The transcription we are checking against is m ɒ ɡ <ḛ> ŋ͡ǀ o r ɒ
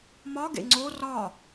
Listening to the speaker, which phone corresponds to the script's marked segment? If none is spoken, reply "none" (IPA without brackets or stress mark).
ḛ